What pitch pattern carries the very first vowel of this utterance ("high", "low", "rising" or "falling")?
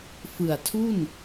low